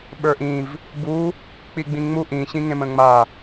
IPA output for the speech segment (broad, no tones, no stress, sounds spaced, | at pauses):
ɓ ə˞ ʔ ĩ v | b u | k͡p i ɡ͡b ĩ ŋ͡m u ʔ ĩ ɕ ĩ ŋ ẽ m ə̃ ŋ͡m a